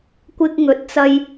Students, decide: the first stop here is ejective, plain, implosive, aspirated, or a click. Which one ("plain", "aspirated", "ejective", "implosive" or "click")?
plain